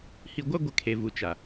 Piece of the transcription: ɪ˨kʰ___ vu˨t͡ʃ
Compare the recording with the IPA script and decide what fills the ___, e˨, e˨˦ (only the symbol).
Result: e˨